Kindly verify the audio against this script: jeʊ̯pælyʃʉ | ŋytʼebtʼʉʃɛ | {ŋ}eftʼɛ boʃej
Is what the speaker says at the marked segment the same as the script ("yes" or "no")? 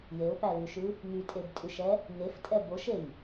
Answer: yes